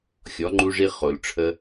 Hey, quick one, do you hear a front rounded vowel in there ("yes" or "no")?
no